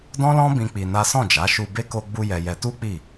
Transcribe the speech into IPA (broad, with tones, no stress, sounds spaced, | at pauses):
d ɔ̃˦ l ɔ̃˦ b ĩ˦ k͡p i˧ n a˦ s ɔ̃˦˨ d͡ʒ a˨˦ ʃ u˧ b e˦ k o˧ ɡ͡b u˧ j ɛ˧ j ɛ˧ t u˦ k͡p i˦˨